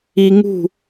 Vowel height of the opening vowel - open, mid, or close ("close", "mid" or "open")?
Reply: close